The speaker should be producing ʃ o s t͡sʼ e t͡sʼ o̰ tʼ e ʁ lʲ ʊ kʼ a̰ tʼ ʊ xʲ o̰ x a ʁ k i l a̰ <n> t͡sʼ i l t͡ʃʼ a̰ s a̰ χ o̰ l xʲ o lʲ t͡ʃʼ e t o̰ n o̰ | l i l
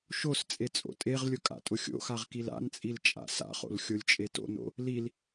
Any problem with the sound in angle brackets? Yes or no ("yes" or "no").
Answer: no